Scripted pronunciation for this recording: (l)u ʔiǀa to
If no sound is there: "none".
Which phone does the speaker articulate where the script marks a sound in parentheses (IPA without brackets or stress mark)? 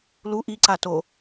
l